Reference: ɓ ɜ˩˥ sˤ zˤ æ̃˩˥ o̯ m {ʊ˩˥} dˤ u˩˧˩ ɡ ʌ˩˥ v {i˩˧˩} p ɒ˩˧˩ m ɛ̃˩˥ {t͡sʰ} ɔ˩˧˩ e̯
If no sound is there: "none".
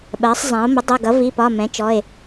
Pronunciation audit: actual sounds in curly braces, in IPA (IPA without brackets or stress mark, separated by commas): ʊ˩˥, i˩˧˩, t͡ʃ